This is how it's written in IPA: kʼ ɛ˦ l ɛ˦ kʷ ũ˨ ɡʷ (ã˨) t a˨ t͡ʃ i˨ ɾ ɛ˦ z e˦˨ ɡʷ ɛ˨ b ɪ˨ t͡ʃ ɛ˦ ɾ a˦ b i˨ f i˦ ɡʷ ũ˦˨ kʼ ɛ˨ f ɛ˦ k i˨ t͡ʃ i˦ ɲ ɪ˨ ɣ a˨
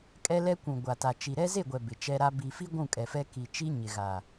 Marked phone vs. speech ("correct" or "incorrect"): incorrect